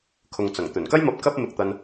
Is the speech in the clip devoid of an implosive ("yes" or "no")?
yes